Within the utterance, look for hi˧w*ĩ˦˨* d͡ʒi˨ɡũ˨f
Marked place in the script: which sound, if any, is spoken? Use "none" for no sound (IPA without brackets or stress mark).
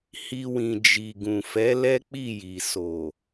ĩ˨